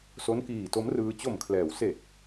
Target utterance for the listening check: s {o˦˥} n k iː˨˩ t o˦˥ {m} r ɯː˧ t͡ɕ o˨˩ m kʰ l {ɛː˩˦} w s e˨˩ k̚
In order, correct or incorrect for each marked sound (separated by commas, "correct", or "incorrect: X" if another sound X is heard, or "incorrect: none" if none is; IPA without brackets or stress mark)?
correct, correct, correct